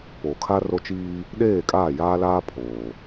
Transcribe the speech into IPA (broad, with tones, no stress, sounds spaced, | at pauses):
p oː˨ kʰ a˦ r o˦ t͡ʃ iː˦ | ɗ eː˦˨ kʼ aː˦˨ j aː˦ l aː˦ pʰ oː˨